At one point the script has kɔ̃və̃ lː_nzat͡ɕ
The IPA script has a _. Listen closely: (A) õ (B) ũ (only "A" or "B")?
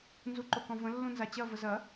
B